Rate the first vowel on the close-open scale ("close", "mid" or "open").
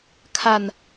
open